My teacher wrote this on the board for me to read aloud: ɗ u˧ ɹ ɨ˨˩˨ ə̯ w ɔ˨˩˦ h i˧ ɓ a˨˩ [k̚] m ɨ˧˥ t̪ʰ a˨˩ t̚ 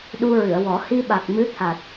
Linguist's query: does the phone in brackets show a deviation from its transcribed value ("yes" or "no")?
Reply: no